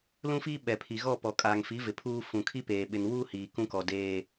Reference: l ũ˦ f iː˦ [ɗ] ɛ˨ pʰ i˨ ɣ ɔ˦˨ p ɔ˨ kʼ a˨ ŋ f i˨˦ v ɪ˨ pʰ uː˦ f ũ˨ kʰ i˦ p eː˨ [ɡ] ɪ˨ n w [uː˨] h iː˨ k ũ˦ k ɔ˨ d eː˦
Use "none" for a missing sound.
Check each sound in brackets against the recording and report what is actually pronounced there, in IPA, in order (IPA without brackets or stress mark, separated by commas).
ɓ, ɓ, uː˦